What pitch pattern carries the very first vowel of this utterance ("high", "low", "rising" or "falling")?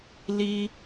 high